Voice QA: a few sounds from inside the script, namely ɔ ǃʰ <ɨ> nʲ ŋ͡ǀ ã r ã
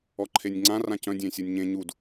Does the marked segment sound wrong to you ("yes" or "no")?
yes